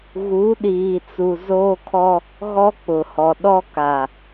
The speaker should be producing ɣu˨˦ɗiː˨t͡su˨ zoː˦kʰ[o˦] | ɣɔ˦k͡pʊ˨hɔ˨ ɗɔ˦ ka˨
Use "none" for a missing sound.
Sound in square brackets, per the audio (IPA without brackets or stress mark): ɔ˦